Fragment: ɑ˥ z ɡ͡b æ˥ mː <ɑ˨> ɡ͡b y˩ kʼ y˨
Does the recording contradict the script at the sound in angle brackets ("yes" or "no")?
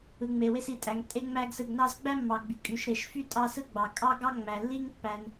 no